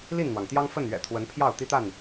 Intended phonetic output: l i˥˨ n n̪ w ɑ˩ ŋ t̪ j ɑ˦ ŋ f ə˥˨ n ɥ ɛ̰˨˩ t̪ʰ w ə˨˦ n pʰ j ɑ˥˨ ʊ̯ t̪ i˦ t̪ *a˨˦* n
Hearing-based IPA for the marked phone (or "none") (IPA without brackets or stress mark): a˥˨